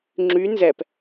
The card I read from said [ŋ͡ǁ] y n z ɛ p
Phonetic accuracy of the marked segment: correct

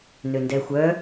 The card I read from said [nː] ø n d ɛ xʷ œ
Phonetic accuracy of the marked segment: incorrect: n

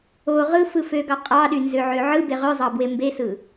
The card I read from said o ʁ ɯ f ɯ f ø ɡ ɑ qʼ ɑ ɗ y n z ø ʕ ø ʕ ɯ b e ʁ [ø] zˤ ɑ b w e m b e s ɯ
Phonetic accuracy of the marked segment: correct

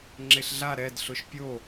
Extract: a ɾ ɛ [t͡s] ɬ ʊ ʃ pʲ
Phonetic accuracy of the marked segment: incorrect: d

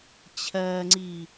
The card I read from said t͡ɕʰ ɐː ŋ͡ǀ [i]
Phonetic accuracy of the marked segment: correct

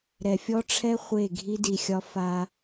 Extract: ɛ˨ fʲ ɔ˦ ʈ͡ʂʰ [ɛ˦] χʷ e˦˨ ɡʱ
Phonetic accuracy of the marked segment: correct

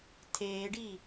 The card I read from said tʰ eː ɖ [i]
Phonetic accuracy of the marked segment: correct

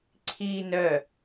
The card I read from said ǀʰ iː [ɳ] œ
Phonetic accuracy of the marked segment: incorrect: n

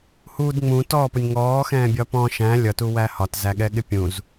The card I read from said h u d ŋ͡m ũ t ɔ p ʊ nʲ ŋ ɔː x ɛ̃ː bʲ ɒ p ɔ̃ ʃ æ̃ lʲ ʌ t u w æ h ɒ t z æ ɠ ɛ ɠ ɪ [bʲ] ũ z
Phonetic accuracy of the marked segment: incorrect: pʲ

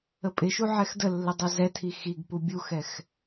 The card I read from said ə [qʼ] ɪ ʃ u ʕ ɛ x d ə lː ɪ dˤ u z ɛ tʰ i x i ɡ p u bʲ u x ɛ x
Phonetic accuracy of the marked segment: incorrect: pʼ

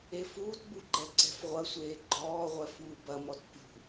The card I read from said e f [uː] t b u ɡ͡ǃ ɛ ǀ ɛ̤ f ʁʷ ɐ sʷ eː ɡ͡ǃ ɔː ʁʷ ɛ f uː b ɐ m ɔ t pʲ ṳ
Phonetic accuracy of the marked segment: correct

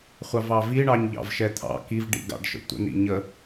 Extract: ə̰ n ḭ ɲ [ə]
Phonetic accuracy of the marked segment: correct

